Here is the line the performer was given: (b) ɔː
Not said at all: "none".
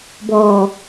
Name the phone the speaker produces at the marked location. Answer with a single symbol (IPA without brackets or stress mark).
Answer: b